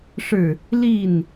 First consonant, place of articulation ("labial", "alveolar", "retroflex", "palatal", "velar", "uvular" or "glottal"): retroflex